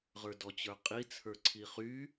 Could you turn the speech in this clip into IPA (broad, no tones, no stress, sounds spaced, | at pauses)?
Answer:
ʁ ə˞ d ɔ t͡ɕ ə˞ qʼ i t͡sʰ ə˞ ǀʰ i χ y